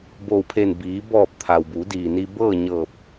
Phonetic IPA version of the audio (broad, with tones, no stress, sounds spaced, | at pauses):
b oː˧˩ w pʰ eː˧˩ n b iː˩˧ b ɔː˧˩ p̚ t̪ʰ a˩ w b u˩˧ d iː˩ n iː˧ b ɤː˥˨ ɲ ɤː˧˩ p̚